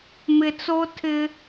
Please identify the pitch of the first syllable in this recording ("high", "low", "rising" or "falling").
low